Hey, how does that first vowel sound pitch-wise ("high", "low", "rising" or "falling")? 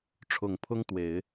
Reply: low